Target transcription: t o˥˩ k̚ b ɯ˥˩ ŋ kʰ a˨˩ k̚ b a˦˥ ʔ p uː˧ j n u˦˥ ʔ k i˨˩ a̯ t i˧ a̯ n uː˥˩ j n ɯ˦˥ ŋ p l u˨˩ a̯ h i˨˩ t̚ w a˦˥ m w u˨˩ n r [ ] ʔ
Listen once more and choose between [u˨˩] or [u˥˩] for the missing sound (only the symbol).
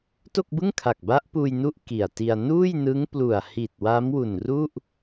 u˥˩